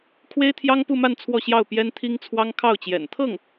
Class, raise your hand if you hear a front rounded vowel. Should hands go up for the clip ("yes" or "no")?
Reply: no